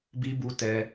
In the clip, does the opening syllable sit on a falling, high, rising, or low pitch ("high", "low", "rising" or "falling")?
high